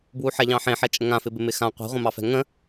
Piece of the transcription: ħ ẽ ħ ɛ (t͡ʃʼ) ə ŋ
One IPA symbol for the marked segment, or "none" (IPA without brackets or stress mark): t͡ʃʼ